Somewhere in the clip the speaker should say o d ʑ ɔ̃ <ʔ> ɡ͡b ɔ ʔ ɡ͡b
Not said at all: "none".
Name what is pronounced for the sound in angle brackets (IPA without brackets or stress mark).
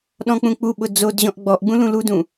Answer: ʔ